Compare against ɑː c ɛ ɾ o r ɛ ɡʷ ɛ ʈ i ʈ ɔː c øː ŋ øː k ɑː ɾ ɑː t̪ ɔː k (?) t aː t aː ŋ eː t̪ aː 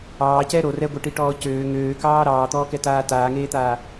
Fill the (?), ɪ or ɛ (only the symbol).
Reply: ɛ